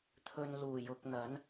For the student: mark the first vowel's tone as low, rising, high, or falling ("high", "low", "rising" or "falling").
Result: low